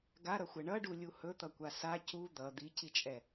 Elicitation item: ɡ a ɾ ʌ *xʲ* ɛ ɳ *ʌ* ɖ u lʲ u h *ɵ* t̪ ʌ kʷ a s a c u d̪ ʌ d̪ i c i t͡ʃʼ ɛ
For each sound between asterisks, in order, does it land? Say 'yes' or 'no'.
no, yes, yes

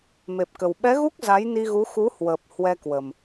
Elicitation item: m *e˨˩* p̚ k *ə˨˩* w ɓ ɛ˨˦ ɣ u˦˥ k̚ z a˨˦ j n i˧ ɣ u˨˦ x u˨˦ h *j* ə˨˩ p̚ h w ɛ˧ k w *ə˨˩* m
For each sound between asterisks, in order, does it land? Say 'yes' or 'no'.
yes, yes, no, yes

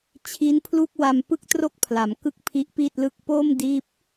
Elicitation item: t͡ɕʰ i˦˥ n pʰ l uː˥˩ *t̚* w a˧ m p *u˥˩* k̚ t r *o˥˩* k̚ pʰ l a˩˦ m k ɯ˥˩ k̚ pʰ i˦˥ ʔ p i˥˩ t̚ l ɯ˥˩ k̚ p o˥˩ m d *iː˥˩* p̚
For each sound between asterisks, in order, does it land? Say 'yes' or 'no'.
no, no, yes, yes

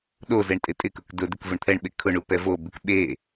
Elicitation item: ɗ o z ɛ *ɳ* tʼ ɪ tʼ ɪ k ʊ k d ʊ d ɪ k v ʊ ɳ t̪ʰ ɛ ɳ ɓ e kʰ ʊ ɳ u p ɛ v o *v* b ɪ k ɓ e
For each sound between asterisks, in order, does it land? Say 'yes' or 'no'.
yes, no

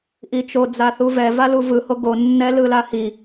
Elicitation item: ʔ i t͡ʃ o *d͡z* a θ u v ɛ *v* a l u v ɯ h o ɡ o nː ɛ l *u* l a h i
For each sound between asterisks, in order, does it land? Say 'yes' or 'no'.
yes, yes, no

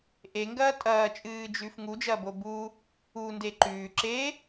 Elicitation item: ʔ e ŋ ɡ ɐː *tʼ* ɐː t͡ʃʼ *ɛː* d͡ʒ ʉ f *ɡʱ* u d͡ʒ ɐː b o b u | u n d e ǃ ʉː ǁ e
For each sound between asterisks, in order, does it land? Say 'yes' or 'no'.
yes, no, no

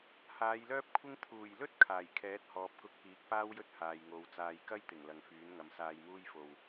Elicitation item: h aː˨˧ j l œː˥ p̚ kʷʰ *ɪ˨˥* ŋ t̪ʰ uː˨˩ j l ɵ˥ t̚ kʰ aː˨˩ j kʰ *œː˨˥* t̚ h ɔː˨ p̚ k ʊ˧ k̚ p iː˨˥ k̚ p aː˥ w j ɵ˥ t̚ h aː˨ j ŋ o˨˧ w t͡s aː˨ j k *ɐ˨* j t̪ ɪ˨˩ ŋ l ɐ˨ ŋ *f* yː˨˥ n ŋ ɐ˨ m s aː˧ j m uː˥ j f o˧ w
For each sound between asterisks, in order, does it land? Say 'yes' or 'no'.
no, no, no, yes

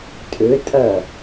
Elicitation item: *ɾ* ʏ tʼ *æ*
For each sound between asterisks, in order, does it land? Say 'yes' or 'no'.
no, no

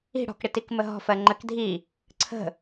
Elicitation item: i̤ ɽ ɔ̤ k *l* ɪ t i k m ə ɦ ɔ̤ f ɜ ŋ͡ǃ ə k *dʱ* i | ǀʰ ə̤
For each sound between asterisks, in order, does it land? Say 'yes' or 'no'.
no, yes

